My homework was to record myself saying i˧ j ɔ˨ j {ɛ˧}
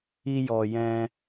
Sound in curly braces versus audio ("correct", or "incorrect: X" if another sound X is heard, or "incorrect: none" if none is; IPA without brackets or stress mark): incorrect: ɛ̃˧